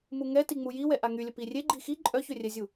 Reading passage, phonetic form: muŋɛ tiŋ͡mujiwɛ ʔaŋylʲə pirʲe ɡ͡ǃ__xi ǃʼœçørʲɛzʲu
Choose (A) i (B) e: A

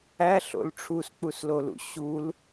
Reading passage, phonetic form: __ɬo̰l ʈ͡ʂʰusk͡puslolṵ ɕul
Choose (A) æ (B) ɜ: A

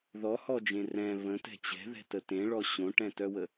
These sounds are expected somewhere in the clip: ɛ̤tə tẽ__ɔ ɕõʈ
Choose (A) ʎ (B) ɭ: B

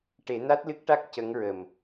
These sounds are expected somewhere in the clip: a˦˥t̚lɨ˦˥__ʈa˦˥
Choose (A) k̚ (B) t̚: A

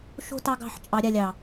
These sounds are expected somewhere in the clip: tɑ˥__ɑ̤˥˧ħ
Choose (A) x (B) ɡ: B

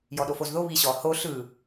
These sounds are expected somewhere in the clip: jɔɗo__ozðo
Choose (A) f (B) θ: A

